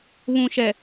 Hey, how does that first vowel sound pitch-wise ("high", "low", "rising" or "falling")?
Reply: low